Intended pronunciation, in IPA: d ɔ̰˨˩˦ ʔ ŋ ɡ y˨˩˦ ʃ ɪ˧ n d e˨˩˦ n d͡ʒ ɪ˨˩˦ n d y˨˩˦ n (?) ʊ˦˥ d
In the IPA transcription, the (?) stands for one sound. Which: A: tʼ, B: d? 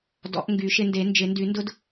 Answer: B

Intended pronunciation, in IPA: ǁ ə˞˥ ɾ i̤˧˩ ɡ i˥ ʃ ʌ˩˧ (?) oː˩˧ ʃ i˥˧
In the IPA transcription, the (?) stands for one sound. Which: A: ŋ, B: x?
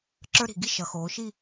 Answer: B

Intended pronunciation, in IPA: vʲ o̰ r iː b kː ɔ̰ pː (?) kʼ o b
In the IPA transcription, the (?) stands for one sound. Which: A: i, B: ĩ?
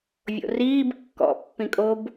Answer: B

